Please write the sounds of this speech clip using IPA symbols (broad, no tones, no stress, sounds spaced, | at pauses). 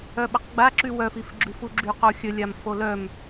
œ ɓ ə q ɡ͡b a ǁ y w œ f i f ɡ͡ǁ y f u ɡ͡ǁ y q o xʲ ə lʲ a m f o l œ m